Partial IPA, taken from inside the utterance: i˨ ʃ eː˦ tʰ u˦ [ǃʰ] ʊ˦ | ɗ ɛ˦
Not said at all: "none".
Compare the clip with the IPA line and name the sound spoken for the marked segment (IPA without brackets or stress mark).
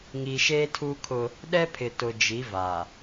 kʰ